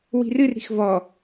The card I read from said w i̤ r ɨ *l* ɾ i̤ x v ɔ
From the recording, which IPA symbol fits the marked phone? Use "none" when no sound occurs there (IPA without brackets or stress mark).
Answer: r